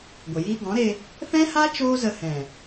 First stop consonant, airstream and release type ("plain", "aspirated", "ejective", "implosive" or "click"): plain